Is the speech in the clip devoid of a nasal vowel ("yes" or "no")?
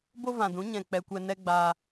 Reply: no